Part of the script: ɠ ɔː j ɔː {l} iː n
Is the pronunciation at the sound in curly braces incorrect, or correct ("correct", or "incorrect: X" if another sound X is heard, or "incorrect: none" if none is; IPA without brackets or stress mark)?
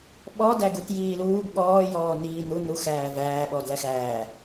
incorrect: n